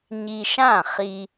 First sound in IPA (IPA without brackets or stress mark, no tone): ɲ